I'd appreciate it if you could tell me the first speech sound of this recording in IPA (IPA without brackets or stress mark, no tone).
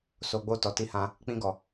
s